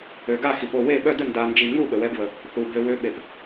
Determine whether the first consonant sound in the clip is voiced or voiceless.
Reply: voiced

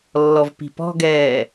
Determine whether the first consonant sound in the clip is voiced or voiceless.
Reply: voiced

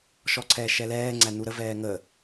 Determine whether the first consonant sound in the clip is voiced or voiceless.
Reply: voiceless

